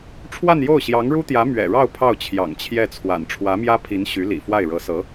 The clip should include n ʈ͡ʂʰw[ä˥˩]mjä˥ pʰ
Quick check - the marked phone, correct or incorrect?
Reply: incorrect